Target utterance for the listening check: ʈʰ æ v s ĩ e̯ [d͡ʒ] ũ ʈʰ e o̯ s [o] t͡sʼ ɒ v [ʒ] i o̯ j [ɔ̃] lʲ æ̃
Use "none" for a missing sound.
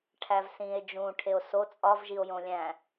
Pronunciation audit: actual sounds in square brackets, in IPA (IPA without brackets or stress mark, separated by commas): d͡ʒ, o, ʒ, õ